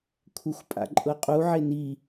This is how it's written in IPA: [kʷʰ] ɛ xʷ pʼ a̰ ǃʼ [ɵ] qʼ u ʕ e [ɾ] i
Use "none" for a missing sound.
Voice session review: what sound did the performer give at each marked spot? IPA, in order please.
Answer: kʷʰ, ɤ, n

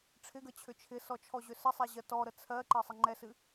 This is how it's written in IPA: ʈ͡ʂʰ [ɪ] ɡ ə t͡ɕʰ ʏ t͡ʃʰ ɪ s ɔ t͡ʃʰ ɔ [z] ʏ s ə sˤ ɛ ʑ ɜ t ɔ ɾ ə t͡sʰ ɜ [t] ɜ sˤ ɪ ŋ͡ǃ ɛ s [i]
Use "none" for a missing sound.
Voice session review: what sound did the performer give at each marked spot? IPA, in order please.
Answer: ɪ, ʑ, ǃ, ɨ

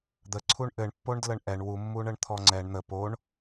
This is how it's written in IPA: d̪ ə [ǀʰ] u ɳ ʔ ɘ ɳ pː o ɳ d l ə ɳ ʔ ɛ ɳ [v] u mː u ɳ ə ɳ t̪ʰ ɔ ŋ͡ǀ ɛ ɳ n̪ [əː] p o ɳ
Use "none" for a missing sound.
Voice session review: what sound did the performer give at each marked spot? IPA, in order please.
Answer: ǀʰ, w, ə

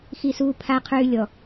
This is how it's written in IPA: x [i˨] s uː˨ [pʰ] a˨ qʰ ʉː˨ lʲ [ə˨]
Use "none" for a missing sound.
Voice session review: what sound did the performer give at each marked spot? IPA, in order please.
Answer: i˨, pʰ, ɔ˨

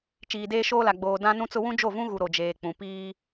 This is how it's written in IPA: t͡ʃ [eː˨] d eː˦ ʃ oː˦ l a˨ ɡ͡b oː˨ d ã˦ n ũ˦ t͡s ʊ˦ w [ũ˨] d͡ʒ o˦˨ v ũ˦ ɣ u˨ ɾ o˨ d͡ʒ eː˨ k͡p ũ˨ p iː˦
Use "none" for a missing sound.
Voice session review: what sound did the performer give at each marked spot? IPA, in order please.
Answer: iː˨, ũ˦

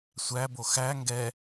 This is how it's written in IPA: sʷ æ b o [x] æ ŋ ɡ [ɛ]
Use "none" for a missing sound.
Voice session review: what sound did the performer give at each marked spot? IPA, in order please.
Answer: x, ɛ

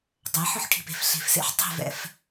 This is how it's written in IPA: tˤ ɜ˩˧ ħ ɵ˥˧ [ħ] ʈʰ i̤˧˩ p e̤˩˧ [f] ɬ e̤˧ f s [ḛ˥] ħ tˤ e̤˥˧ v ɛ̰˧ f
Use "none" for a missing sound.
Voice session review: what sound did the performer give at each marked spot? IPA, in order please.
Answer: ħ, f, ḛ˥

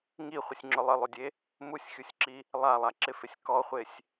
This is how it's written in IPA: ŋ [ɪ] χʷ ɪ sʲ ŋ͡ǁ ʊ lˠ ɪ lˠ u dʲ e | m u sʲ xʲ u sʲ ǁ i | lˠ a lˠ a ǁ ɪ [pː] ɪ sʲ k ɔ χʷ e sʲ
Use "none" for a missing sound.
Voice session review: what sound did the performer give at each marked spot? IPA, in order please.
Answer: i, f

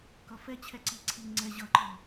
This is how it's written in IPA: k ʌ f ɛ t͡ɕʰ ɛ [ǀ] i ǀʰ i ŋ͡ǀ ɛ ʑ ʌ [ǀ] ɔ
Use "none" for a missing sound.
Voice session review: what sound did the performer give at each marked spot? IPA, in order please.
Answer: ǀ, ǃ

